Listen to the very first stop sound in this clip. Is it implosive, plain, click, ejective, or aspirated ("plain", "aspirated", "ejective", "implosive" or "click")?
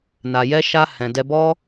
plain